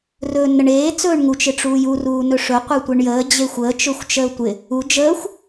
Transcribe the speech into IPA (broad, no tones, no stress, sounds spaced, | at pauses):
r ɵː nː ə ɳ eː t͡s ɵː ɳ ŋ u t͡ʃ ɪ ʈ͡ʂ uː j u r uː n ɵ ʂ ɵ qʷ e tʷ e ɳ j əː d͡ʑ e xʷ əː t͡ʃ ɵ xʷ t͡ʃ əː tʷ ɪ | u d͡ʒ əː xʷ